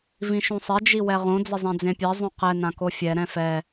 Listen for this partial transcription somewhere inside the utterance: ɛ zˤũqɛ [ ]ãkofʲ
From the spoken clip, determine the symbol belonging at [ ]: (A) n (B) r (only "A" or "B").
A